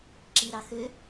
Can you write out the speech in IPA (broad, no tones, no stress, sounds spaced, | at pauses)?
ǁ i ɾ ɑ x ø